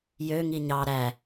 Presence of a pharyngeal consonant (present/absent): absent